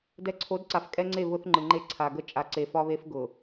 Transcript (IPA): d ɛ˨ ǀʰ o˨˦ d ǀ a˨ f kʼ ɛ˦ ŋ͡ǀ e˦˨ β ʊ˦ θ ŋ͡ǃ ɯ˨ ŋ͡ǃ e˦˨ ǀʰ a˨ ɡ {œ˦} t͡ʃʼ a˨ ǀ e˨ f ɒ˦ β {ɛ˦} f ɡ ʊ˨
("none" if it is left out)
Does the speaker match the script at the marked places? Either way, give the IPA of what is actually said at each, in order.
ə˦, e˦

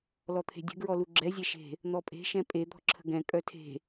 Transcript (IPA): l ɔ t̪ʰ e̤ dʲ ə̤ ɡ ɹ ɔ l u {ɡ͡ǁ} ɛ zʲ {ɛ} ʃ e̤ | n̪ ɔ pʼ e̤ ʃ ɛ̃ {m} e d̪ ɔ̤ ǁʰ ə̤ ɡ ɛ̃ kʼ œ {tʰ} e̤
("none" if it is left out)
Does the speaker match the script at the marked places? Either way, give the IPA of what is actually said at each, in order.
ɡ͡ǁ, ɛ, pʼ, tʰ

